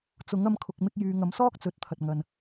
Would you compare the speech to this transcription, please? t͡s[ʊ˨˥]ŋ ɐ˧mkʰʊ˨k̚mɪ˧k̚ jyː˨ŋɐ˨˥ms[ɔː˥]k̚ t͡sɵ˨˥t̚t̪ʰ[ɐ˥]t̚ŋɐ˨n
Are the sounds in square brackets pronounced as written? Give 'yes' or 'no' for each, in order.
yes, yes, no

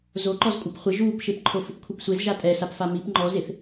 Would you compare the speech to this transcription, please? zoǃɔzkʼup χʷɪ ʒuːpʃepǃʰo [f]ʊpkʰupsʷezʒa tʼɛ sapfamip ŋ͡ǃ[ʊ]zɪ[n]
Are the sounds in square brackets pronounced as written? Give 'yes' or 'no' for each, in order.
yes, no, no

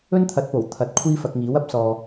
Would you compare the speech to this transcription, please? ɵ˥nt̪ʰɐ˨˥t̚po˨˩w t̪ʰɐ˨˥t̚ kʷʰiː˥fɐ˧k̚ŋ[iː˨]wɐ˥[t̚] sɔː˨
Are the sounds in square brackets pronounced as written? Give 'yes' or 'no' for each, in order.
no, no

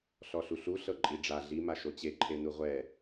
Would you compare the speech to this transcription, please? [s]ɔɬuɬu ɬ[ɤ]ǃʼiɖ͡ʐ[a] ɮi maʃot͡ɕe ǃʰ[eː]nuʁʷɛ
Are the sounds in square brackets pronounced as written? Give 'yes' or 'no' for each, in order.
no, yes, yes, no

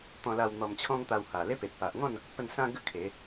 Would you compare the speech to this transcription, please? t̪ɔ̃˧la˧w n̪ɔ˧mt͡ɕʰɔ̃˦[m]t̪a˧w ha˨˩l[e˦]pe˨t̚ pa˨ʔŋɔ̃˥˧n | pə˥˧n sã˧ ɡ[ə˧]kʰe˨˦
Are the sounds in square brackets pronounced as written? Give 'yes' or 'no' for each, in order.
no, yes, no

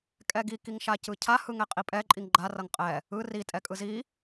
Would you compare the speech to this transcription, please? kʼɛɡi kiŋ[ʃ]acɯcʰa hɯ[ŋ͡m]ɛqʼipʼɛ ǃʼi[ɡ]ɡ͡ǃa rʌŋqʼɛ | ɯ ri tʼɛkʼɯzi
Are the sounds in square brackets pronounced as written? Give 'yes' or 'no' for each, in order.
yes, no, no

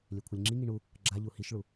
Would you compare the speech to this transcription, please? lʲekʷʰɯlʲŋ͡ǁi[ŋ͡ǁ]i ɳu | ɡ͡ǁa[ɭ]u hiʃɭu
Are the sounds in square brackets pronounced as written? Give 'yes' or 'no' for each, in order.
no, no

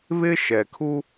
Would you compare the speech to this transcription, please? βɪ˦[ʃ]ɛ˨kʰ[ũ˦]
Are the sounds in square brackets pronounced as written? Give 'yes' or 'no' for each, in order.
yes, no

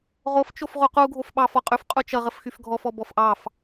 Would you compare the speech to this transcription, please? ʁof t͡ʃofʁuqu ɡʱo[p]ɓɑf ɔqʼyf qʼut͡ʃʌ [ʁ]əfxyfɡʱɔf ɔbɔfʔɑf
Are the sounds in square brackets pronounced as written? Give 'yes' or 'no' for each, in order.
no, yes

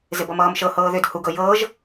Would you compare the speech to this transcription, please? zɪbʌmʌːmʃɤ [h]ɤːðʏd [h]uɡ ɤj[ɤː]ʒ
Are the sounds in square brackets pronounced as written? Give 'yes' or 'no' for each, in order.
yes, yes, yes

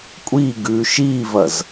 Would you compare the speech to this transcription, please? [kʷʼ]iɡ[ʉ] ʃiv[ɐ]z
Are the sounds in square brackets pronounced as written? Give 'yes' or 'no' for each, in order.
yes, yes, yes

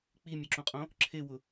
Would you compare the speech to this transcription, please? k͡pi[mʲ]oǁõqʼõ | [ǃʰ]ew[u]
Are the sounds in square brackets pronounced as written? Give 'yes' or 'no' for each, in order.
yes, no, no

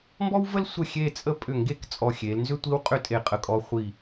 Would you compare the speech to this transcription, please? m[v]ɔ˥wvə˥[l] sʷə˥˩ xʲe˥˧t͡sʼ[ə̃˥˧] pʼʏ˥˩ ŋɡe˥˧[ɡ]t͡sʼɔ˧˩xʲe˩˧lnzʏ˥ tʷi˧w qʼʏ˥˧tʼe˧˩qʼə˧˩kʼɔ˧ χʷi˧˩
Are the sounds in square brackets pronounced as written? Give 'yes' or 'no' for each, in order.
no, yes, no, no

